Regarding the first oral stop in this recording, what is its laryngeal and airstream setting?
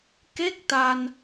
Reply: plain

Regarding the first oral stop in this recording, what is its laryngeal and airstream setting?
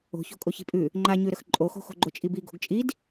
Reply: ejective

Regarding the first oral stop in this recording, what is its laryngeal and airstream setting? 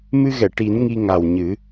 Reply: plain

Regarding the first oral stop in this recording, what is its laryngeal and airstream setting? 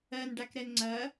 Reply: plain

